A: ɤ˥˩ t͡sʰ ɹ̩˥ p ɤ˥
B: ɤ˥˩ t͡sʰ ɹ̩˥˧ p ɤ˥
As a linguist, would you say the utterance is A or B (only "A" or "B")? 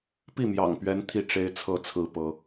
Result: A